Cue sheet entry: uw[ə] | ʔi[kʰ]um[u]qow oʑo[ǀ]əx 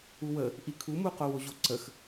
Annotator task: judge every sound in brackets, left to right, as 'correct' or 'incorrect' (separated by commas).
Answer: correct, correct, correct, correct